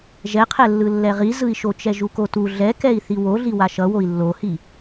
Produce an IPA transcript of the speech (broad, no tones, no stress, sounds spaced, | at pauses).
ʒ ɛ qʰ ɛ lː ɯ lː ɛ ʁ i z ɯ i̯ ʃ o t͡ʃ ɛ ʒ u k o t u ɮ ɛ k ɛ i̯ θ i w o ɮ i w a ʃ ʌ w o i̯ lː o h i